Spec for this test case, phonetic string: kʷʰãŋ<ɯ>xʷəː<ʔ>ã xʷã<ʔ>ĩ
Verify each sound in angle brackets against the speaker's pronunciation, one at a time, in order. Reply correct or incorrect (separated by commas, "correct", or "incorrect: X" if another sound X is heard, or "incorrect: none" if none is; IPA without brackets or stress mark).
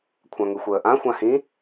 correct, correct, incorrect: h